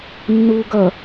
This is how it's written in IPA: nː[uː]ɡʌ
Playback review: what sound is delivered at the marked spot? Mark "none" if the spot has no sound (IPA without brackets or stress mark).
uː